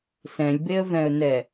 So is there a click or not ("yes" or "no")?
no